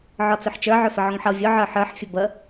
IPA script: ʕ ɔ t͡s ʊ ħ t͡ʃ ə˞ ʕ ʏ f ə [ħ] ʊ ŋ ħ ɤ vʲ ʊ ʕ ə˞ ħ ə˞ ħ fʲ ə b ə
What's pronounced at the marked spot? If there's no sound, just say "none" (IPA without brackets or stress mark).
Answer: ʕ